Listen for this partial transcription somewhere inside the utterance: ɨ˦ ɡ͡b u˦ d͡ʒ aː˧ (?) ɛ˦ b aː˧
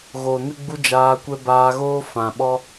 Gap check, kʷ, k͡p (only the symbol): kʷ